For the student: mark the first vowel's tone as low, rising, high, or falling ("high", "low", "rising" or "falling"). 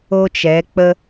high